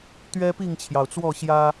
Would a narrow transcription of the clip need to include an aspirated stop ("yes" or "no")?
yes